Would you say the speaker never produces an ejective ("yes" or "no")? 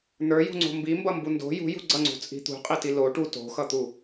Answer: no